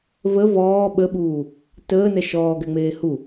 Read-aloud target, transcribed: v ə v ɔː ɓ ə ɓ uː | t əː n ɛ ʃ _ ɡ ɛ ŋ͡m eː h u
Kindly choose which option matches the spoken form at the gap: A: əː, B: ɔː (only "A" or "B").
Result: B